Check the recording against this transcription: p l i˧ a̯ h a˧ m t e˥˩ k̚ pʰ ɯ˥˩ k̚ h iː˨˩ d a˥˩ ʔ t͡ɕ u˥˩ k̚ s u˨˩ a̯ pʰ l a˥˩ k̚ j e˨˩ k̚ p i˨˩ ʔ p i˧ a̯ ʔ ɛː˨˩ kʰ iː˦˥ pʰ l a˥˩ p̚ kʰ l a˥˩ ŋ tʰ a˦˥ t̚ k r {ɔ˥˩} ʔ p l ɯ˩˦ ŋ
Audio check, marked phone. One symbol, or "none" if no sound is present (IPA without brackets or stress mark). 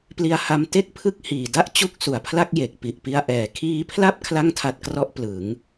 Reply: ɔ˦˥